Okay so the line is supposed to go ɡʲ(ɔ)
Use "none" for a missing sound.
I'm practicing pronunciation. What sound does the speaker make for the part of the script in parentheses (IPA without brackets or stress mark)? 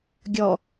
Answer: ɔ